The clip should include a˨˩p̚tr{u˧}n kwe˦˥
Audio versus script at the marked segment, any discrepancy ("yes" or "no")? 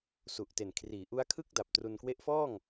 no